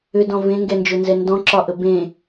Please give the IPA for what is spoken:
ʏ d ɔ̃ v ẽ ŋ ɡ ɛ n d͡ʒ ɵ n z ɛ n d ɔ̃ ǁ ɒ ʔ ə b ẽ

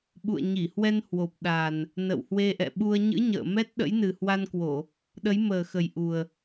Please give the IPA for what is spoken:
ɓ ṵ˧˨ ə̯ ɲ i˧˩ h w ɛ˧ n h w o˨˩ p̚ ɗ a˨˩ n | n ə̰˧˨ w h w e˧ ʔ ɛ̰˧˨ ɓ u˧ ə̯ ɲ ɨ̰˧˥ ɲ ə̰ː˧˨ m ɛ˦˥ t̚ ɗ ə̰˧˥ j n ɨ˨˩ h w a˧ n k w o˧˩˨ | ɗ ə˨˦ j m əː˨˩ x ə˨˩ j ʔ u˨˩ ə̯

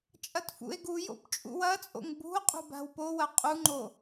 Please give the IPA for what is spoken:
t͡ʃʼ ɐ t f ṵ e̯ ɡ u j o̰ b t͡ʃʼ ṵ w ɐ t͡sʼ o̰ ŋ b ṳ o̯ qʼ ṳ b a̤ w p o w ɐ qʼ u ŋ͡ǃ o

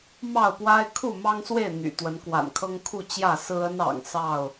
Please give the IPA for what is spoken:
m ɑ˥˨ ʊ̯ p w a˦ ɪ̯ kʰ u˥˨ m ɑ˦ ŋ s w e˥˨ ɪ̯ n̪ y̰˨˩ t̪ w ə˨˦ n k w a̰˨˩ n kʰ ɤ˦ ŋ kʰ u˥˨ t͡ɕ j ä˥˨ s ɹ̩˦ ə˦ n ɑ̰˨˩ ŋ s ɑ˥˨ ʊ̯

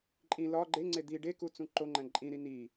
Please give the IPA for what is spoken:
ǃʼ ĩ l ɒ ɡ͡ǃ e ŋ͡ǀ e d̪ i ɖ e k u t͡s ũ ǃ o ŋ͡ǃ æ̃ ǃʼ ĩ ɾ i n i

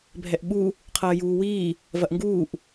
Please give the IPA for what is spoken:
bʱ ɛ ʔ ɓ u | qʰ ɐː j uː w iː | v ɐ ʔ ŋ ɡ uː ʔ

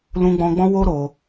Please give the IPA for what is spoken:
l ũ˧ ɡ͡b ɔ̃˧ ɡ͡b ɔ̃˦ w o˦ ɾ o˧

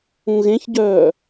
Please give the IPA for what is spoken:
ũ ɣ ẽ ç ɟ œː

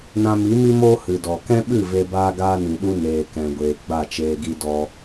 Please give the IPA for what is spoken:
n ã˧ m i˨˦ m i˦ m oː˦ h ɨ˨ d ɔ˨ k ɛ̃˦ ɓ ɨ˦˨ v e˧ b aː˦ ɡ aː˦ n ĩ˨ ɗ u˦ n eː˨ k ɛ̃˨ ɡʷ eː˨ ɡ͡b a˦˨ t͡ʃ eː˧ ɡ i˦ d ɔ˦

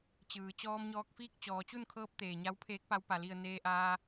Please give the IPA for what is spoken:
t͡ɕ ɯː˩˧ t͡ɕ ɔː˧ m ɲ ɔː˧ k̚ f iː˥˨ k̚ t͡ɕ ɔː˩˧ t͡ɕ u˥˨ n kʰ ɤː˧˥ p̚ t̪ eː˩ ɲ a˧˥ w pʰ eː˧˥ k̚ p a˧˥ w p a˩ l i˧˩ ə̯ n eː˧ ʔ aː˧

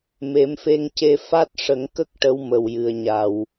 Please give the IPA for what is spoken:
m e˨˩˦ m f e˧ ŋ c e˧ f a˦˥ t̚ ʂ ə˨˩˦ ŋ k ə˦˥ k̚ ʈ ə˧˥ w m ə˨˩ w j ɨ˨˩ ə̯ ɲ a˨˩ w

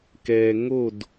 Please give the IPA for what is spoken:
k ɛ˨ ŋ o˦˨ d

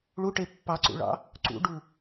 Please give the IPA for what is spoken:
ɭ u ʈ e pː ɑ ǀ ṵ ɭ ɑ̰ | ǀ ṵ ɖ u

